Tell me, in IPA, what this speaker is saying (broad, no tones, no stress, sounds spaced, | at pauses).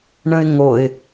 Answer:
ɳ ə̃ ɪ̯ ŋ o ɪ̯